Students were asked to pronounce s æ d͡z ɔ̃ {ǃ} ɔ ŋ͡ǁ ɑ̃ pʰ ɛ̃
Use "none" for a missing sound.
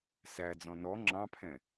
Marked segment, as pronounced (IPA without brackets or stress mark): n